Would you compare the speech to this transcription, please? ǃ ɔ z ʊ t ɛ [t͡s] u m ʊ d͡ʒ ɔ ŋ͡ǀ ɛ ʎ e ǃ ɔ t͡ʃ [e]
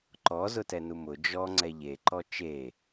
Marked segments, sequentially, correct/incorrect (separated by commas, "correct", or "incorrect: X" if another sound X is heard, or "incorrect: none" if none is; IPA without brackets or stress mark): incorrect: n, correct